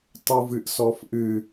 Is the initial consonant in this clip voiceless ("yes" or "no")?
yes